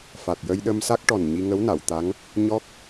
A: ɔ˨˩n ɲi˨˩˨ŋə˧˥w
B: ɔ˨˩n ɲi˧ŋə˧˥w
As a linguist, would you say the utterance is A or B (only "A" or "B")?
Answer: B